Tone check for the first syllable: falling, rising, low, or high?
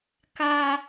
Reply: high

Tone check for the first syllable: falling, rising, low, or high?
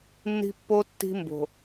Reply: high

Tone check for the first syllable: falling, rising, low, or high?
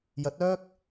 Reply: rising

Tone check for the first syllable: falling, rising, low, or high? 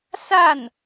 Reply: falling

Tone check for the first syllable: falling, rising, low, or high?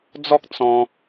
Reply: high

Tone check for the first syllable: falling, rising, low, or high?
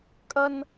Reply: high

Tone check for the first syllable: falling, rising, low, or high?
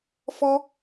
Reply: high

